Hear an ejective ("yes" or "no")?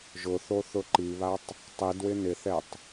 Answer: no